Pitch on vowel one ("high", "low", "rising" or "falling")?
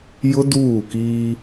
high